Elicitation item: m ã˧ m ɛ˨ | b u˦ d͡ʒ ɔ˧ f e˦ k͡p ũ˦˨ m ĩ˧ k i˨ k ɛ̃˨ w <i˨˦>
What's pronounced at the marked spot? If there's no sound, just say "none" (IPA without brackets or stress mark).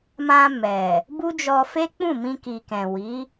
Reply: i˨˦